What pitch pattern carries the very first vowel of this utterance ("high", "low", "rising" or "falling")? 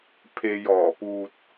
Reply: low